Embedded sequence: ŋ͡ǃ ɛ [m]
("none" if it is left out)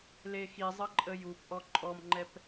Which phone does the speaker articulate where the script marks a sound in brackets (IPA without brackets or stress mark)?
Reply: p